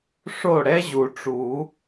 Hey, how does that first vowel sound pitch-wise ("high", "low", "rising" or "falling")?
falling